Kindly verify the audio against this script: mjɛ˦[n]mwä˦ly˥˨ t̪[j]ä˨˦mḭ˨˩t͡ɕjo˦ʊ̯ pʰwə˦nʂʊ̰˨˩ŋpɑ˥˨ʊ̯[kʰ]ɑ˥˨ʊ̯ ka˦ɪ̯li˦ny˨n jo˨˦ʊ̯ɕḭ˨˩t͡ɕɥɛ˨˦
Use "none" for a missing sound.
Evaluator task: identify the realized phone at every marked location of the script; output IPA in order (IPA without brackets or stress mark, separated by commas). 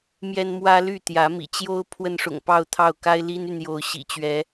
n, j, t̪ʰ